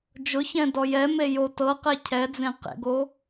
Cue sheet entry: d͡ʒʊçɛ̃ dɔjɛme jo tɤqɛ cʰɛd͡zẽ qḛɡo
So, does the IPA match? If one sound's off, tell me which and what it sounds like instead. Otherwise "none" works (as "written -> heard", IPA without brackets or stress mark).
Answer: none